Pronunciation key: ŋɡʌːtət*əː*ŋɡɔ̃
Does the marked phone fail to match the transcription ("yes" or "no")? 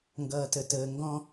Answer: no